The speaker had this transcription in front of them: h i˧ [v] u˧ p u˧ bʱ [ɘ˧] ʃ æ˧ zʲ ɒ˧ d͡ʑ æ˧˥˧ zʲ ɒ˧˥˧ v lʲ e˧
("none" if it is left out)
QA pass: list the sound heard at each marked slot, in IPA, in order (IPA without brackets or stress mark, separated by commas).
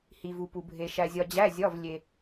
v, e˧